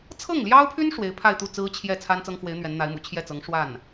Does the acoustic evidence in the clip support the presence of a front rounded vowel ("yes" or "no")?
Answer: yes